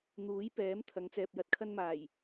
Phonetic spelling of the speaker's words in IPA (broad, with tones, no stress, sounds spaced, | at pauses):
n̪ uː˨˥ j p ɛː˨˥ m t̪ʰ ɐ˨˧ ŋ t͡s ɛː˨ p̚ j ɐ˧ t̚ kʰ ɐ˧ n m aː˨˩ j